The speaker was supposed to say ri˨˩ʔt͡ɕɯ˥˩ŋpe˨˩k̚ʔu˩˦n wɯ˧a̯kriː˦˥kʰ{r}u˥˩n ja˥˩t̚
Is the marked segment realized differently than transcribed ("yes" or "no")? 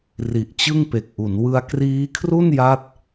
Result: no